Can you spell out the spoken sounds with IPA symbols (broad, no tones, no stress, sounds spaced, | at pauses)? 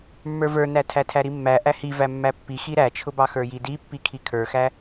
mː ə˞ v ə˞ n æ tʰ æ tʰ æ ɾ i mː æ ʔ æ h i v æ mː æ pː i x i ɾ æ t͡ʃʰ ʊ b ɑ x ə˞ j i d i pː i kʰ i kʰ ə˞ x æ